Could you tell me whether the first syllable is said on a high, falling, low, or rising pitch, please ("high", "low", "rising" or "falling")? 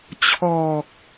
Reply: low